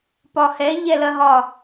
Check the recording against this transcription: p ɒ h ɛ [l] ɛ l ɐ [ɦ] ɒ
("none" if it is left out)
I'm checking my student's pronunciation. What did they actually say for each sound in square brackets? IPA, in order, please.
ʎ, ɦ

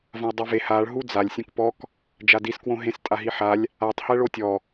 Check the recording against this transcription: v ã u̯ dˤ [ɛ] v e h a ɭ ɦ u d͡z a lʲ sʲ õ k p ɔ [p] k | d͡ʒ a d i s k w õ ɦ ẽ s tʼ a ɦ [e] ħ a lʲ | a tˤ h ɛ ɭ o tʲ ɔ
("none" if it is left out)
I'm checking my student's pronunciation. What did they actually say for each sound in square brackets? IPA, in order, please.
ɛ, none, i

